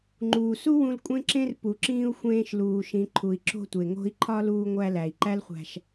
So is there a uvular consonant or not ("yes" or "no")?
yes